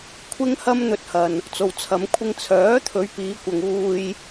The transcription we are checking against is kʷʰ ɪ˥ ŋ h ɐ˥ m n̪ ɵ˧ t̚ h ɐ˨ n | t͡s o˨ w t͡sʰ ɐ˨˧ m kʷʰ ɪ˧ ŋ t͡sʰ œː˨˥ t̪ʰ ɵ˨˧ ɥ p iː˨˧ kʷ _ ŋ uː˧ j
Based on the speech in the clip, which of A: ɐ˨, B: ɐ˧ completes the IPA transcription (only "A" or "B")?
A